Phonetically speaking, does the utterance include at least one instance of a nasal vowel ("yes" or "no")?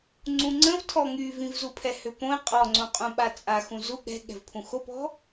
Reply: yes